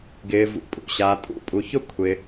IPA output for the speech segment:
ɡ ɪː˩ v ṵ˩ pʼ ṵ˩ ɕ aː˩ tʼ ṵ˦ pʼ u˩ ç ʊ˦ kʷʰ ɪ˩

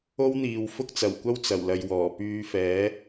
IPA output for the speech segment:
o˥ w n̪ iː˨ w f ʊ˥ k̚ t͡s ɐ˨˩ w kʷ ɐ˥ w t͡s ɐ˨˩ w l ɐ˨ j w ɔː˨˩ p yː˧ f ɛː˨˥

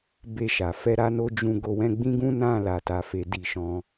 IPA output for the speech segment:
b e˧ ʃ a˨ f ɛ˧ ɾ a˧ n o˧ d͡ʒ ũ˧ ɡ o˧ w ɛ̃˦ ɡ͡b ĩ˦ ɡ ũ˦ n ã˦˨ l a˨ t a˨˦ f e˧ d i˧ ʃ ɔ̃˧

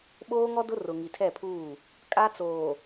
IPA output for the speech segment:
ɓ oː˦ ŋ ɔ˦ d ʊ˦ r ʊ˨ ŋ i˨ tʰ ɛ˦˨ pʰ uː˦˨ | kʼ a˦ t͡s oː˨

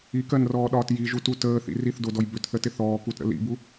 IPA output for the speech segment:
i k ɜ n r ɔː ɗ ɒː t j i ʒ u t u t əː θ ḭ r i θ d o d ɔ j b ʏ t θ ə t ɪ θ ɔː k u t ɾ ə̰ l ḭ b u

